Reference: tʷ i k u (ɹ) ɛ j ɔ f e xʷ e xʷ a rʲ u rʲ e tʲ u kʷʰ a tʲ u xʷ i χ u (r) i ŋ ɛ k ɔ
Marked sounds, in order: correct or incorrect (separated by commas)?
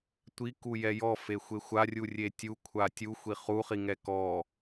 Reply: incorrect, incorrect